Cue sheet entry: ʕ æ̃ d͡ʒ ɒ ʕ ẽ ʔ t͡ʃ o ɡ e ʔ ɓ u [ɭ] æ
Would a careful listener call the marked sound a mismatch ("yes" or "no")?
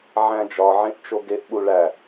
no